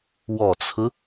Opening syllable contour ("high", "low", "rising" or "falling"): low